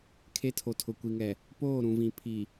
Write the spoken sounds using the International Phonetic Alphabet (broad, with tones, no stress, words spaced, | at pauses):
kʰe˦tʰo˨tʰʊ˨ kʷi˨ŋɛ˨ | poː˦˨ɾũ˨vĩ˨ pʰi˨